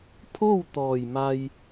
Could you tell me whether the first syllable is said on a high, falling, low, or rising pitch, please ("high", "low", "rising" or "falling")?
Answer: falling